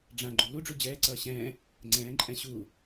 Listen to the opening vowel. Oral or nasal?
nasal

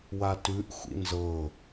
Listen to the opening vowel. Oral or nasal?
oral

